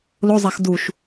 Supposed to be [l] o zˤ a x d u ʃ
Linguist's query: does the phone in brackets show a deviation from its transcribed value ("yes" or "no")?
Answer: no